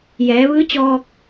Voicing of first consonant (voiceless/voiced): voiced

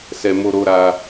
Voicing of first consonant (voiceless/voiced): voiceless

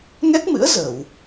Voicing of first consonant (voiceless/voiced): voiced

